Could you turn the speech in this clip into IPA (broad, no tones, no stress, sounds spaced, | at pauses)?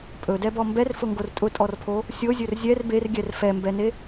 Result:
pʼ ɵ d ɛ b ɔ m b ɛ r f ʊ ŋ ɡ o r tʼ ʊ tʼ ɔ r pʰ o | sʲ o zʲ ɵ r zʲ ɛ r b e r ɡʲ ɛ r f ɛ m b ɛ n e